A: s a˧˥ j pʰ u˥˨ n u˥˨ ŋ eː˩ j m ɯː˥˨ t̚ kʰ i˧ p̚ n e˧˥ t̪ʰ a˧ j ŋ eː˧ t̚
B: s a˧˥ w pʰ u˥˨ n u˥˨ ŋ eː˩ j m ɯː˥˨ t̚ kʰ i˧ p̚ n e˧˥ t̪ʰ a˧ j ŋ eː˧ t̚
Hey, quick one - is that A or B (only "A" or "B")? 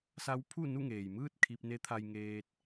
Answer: B